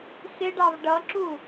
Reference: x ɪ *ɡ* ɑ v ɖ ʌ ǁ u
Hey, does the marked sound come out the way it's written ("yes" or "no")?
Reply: no